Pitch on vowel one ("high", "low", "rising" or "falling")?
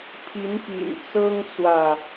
rising